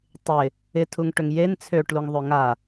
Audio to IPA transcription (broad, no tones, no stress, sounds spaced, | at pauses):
tˤ ɪ | ɪ tʰ u ŋ ʈ ø ŋ j e n t͡sʰ ø ʈ l u ŋ ðˤ ø ŋ a